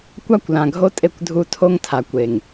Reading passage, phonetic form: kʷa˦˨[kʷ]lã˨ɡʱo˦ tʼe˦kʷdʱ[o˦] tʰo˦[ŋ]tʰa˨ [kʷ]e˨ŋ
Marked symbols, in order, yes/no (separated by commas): yes, no, yes, yes